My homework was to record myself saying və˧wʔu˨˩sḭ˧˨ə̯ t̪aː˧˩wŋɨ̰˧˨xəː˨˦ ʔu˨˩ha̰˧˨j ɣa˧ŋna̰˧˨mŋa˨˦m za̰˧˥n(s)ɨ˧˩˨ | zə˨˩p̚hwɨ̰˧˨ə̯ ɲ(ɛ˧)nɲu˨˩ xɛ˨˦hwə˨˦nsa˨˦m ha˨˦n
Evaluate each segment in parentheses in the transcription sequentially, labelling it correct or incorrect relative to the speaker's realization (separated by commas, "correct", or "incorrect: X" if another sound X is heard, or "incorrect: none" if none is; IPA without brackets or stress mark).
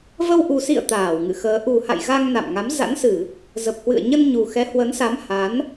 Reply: correct, incorrect: ə˧